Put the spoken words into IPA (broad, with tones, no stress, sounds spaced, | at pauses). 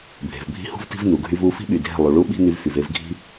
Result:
bʱ e̤˨ v bʱ i̤˦ h ṳ˦ v t i̤˦ v n u˨ ɡʱ y˦ v u˦ f i̤˦ ɓ y˨ dʱ e̤˦˨ lˠ u˨ ɭ u˦ ɓ i̤˦ n y˦ v f y˨ v e˦ v ɡʱ i̤˦